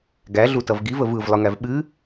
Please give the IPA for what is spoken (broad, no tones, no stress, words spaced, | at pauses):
ɡæɮutʌv ɡivəv ɯvlˠɯŋæv ɓɨ